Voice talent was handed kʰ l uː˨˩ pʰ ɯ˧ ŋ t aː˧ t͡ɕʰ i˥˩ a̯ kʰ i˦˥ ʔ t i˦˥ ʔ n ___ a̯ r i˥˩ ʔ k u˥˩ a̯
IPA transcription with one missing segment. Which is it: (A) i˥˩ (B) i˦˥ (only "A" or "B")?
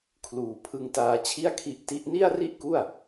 A